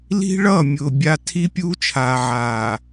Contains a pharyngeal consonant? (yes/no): yes